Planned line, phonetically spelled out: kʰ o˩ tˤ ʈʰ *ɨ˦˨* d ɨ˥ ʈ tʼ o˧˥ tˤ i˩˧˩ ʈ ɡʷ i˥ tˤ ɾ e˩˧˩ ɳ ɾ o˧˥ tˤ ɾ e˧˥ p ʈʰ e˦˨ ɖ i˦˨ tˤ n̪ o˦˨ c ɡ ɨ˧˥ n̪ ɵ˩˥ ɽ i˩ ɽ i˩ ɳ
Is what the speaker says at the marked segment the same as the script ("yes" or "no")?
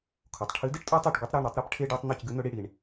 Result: no